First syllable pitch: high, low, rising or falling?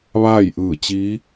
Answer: falling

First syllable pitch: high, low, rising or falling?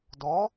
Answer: rising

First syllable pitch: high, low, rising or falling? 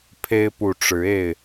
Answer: high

